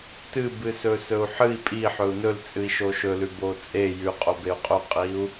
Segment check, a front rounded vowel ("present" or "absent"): absent